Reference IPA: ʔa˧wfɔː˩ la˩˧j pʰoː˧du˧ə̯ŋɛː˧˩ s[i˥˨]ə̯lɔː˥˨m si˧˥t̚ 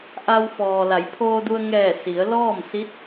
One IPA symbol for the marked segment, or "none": i˩˧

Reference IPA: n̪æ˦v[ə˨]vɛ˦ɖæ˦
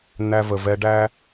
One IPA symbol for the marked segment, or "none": ə˨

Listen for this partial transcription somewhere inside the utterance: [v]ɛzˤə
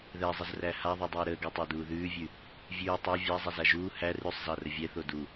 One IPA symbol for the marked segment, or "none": ð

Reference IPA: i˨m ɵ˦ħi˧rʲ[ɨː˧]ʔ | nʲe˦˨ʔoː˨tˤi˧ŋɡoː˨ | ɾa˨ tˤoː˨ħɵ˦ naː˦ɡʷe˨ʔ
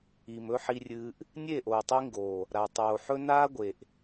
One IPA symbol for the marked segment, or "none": ɨː˧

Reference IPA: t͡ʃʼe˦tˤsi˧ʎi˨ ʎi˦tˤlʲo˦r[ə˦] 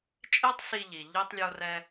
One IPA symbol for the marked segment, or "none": ɛ˦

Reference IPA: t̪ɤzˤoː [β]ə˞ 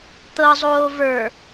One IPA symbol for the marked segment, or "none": v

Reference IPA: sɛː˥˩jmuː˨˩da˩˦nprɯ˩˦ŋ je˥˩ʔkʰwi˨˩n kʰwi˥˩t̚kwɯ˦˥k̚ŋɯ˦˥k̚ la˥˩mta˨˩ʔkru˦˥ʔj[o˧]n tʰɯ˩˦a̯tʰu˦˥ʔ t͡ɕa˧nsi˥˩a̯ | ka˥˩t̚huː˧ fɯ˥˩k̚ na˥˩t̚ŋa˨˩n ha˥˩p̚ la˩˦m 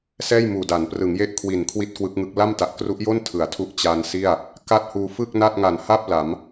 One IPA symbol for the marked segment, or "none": o˥˩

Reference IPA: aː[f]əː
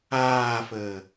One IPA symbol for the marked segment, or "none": f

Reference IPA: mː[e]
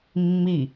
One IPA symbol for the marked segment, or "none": i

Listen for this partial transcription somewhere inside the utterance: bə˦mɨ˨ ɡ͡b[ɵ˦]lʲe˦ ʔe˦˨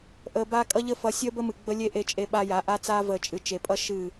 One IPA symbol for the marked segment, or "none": ə˦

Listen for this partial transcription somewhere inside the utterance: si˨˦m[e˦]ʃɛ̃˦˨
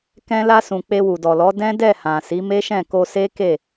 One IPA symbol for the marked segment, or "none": e˦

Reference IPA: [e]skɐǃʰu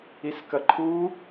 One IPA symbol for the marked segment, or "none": i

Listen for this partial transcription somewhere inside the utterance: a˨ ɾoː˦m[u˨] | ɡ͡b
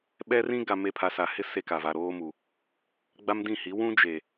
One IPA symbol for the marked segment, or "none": u˨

